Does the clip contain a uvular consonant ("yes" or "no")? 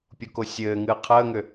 yes